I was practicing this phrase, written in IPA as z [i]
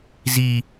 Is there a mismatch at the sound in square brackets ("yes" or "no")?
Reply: no